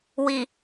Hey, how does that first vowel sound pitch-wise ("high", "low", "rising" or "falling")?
low